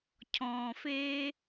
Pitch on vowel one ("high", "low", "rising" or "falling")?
low